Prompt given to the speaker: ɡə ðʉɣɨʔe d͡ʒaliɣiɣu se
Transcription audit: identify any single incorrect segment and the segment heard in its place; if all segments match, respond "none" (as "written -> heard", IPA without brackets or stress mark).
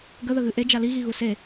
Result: ʉ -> ə